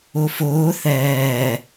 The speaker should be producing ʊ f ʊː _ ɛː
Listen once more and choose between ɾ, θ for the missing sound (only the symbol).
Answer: θ